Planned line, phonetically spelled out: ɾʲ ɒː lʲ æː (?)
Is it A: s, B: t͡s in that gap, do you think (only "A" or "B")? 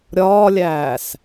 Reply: A